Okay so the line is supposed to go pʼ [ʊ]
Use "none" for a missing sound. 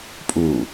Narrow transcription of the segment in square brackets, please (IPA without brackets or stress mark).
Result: u